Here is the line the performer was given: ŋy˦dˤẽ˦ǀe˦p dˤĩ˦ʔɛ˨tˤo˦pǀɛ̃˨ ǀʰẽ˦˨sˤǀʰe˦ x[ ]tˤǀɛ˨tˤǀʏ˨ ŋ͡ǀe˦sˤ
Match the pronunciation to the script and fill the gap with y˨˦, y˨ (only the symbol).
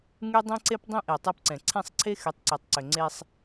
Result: y˨˦